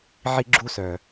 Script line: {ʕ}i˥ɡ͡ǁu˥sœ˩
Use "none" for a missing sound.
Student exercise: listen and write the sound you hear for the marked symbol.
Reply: ʕ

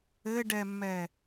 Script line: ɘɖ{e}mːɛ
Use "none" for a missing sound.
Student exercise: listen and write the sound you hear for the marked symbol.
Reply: ɛ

